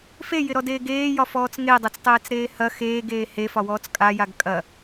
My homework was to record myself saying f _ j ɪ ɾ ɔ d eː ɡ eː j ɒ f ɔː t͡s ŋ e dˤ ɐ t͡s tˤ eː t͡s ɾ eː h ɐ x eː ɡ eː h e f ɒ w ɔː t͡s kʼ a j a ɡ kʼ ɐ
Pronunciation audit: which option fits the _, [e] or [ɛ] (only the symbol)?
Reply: e